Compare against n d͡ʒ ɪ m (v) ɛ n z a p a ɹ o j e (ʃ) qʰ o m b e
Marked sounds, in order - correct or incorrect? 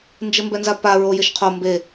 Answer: incorrect: b, correct

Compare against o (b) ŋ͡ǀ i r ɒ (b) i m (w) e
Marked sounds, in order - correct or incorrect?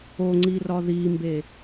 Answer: incorrect: none, incorrect: ð, incorrect: b

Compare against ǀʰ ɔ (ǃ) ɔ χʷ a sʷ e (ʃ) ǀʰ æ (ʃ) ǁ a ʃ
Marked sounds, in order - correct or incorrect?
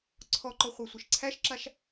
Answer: correct, correct, correct

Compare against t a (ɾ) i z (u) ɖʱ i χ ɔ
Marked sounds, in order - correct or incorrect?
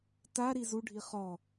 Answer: correct, correct

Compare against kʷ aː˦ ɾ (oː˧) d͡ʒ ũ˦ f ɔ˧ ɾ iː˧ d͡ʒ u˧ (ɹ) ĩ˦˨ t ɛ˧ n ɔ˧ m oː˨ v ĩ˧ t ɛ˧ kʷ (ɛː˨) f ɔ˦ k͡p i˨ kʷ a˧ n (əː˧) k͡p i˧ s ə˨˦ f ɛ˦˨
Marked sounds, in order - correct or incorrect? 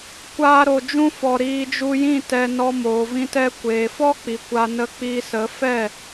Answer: incorrect: o˧, incorrect: j, incorrect: eː˨, incorrect: ə˧

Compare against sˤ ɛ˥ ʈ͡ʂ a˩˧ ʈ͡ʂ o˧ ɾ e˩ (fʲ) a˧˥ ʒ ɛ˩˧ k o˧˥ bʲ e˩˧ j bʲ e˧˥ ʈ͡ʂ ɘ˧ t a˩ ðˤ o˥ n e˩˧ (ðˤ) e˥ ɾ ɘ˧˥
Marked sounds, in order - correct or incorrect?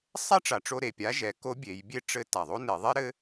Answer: incorrect: pʲ, correct

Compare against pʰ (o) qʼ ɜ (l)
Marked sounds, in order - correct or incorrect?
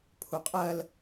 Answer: incorrect: u, correct

